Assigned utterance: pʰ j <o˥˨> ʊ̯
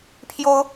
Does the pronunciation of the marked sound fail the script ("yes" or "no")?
yes